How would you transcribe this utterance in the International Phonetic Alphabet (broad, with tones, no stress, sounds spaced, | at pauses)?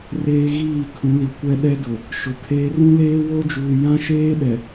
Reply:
r eː˦ ɣ iː˦˨ kʰ ũ˨˦ l i˨ kʷ ɛ˦ ɗ ɛ˦ d ʊ˨ | ʃ ʊ˨ kʰ eː˦ r ũ˦ l eː˦ w o˦ d͡ʒ uː˨ j ã˦ ʃ eː˦ ɗ ɛ˨